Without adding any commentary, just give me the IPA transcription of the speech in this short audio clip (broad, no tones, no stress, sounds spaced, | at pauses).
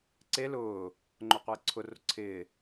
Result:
ǀ e l ʊː | ŋ͡ǃ o qʷ ɪː ǀʰ ʊ r ʊ ǀʰ ɪː